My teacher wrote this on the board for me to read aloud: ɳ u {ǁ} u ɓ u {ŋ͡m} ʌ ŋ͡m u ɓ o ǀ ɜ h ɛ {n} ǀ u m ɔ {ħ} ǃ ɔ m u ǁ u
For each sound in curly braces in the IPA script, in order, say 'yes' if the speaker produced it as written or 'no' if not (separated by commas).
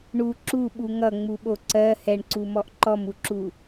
yes, no, no, no